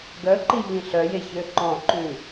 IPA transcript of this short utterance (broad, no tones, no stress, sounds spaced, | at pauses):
ɡ œ ǃ i ʎ ĩ ɬ œ j e ç ø ǃ ɔ̃ ǃ ʉ